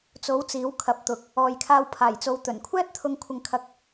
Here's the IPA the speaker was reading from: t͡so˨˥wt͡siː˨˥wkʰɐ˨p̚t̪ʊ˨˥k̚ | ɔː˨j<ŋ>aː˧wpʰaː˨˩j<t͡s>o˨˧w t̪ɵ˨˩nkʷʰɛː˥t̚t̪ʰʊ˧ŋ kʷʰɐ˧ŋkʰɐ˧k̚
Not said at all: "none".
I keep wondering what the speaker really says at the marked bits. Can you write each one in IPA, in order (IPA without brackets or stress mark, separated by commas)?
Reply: kʰ, t͡s